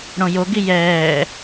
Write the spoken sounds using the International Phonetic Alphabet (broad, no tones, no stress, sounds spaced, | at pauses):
ɽ õ j o ɡ i j ɛː